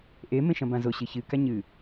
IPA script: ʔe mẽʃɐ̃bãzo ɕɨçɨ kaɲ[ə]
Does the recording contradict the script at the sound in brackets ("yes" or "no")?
yes